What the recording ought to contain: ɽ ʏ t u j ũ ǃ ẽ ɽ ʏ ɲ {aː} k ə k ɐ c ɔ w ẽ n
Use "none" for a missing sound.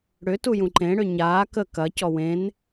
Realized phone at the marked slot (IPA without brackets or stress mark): aː